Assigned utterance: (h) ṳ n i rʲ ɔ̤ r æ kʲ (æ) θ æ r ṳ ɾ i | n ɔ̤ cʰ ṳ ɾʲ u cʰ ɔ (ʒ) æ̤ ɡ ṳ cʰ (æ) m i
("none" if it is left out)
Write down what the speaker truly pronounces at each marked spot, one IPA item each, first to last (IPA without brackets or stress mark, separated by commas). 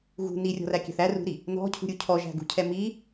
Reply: ɣ, æ̤, ʒ, ɛ